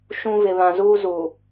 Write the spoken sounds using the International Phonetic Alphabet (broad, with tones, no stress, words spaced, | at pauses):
ʃũ˦ vɪ˨βã˨zuː˦ zuː˨